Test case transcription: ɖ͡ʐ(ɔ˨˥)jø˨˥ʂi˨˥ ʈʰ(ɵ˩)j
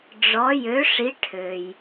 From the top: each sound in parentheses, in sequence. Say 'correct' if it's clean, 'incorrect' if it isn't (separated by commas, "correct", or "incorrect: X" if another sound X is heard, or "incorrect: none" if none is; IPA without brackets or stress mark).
correct, incorrect: ø˩